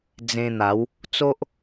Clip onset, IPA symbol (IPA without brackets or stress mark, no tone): d͡z